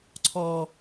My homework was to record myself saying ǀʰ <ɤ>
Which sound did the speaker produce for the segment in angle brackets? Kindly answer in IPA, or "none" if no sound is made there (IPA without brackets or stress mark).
ɔ